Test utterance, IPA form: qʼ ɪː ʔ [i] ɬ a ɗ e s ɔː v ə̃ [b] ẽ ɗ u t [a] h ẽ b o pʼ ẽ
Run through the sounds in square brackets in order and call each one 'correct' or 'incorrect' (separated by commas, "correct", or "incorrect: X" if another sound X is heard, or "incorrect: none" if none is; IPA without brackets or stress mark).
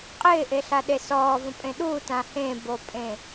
incorrect: e, incorrect: pʼ, incorrect: ã